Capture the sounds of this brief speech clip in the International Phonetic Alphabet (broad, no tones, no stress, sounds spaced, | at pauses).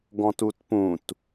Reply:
ɡ ɔ̃ t u t p ũ t